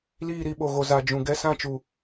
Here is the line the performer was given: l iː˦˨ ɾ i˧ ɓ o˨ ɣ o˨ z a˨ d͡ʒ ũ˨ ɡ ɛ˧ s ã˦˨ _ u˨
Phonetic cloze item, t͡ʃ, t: t͡ʃ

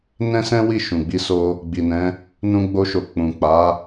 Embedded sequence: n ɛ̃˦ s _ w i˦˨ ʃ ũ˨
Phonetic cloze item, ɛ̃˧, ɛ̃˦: ɛ̃˦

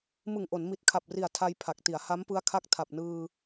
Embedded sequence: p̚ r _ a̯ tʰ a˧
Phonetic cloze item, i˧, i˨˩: i˨˩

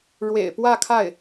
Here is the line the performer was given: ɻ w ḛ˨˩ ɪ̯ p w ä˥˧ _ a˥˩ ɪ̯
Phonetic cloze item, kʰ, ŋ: kʰ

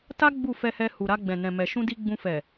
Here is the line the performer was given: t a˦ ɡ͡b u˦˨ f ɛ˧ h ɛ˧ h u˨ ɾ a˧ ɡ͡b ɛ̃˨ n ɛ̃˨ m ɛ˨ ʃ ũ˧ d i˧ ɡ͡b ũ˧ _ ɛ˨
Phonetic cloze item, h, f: f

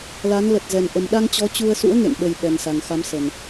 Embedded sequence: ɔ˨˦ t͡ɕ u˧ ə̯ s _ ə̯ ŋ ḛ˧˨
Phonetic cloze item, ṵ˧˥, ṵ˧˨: ṵ˧˥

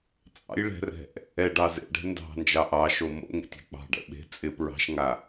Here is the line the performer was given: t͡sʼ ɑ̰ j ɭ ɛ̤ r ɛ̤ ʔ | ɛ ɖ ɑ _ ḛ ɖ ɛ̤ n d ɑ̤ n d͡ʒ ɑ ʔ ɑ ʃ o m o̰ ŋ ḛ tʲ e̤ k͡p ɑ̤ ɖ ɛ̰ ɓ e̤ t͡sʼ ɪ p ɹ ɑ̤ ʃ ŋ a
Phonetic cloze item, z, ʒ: z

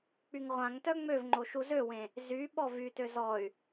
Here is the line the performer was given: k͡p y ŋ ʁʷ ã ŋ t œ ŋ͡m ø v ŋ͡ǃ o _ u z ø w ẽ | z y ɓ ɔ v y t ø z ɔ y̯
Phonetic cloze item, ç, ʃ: ʃ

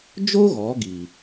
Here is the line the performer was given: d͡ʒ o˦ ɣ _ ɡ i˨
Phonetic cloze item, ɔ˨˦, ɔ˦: ɔ˨˦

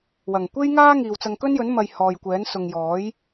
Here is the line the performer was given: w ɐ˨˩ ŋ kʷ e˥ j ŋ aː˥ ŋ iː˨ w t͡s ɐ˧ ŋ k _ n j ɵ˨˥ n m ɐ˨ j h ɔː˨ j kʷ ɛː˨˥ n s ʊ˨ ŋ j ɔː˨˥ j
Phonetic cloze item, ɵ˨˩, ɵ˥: ɵ˥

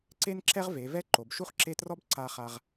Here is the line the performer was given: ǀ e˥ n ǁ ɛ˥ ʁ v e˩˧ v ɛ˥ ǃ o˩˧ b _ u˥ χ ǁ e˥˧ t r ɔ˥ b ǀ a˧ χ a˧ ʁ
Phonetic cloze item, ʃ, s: ʃ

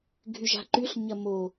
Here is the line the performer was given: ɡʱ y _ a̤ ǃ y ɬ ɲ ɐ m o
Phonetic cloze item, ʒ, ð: ʒ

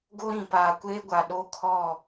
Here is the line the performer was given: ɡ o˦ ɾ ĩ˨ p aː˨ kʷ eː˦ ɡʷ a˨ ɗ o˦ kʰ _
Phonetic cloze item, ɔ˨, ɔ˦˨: ɔ˦˨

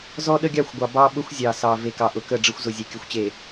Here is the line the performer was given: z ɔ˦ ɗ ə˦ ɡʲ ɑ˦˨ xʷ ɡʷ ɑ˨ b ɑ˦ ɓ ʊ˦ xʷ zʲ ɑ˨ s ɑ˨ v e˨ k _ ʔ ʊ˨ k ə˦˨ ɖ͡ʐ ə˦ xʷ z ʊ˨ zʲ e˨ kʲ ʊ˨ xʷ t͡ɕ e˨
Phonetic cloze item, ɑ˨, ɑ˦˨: ɑ˨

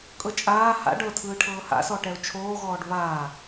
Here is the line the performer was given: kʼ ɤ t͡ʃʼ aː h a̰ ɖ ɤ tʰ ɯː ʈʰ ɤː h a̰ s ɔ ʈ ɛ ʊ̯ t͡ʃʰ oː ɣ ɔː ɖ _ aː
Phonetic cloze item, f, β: β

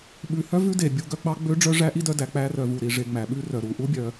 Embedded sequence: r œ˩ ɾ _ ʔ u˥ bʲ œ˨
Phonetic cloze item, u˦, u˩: u˩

